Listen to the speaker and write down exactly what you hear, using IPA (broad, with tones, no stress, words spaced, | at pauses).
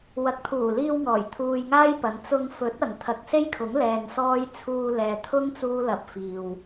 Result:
wɐ˨k̚t̪ʰuː˨˩liː˧wŋɔː˨˩j t̪ʰuː˧jŋaː˥jpɐ˨n t͡sʊ˧ŋfɵ˨˥t̚ ɐ˨ŋt̪ʰɐ˧k̚ se˥jkʰʊ˨˥ŋlɛː˨ŋ sɔː˥j t͡sʰuː˧lɛː˨t̪ʰʊ˥ŋ t͡suː˥lɐ˧p̚fiː˨w